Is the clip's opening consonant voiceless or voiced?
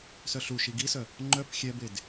voiceless